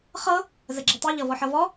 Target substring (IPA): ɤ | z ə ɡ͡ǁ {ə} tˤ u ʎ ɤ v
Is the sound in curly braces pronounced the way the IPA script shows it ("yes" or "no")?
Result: yes